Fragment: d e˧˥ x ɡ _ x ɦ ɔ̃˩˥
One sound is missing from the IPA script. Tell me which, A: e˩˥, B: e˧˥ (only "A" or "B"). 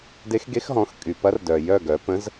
B